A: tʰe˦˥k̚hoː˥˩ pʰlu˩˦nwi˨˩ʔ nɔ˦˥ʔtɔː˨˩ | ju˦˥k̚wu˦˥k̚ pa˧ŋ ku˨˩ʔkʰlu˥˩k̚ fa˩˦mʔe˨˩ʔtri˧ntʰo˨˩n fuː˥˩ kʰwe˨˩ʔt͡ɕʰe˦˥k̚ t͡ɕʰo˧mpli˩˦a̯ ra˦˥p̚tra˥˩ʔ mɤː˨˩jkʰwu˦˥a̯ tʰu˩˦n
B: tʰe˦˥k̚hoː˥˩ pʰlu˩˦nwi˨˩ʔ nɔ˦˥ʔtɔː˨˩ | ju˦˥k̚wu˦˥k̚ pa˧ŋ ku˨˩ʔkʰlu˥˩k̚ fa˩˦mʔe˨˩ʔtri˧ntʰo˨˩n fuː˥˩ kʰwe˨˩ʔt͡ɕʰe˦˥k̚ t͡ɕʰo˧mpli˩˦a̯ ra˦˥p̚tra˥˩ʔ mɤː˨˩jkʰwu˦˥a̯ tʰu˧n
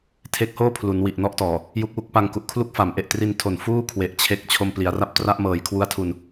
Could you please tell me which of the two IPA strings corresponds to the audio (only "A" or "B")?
B